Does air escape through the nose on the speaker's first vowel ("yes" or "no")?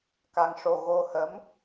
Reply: no